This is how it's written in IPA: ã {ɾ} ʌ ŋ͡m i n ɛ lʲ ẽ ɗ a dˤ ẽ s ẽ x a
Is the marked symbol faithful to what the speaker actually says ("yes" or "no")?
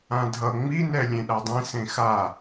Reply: no